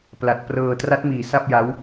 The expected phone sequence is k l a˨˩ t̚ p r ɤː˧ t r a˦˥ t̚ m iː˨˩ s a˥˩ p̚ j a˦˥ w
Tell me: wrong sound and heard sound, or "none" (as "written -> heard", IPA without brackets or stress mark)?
k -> p